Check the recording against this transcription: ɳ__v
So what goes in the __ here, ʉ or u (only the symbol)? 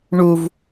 u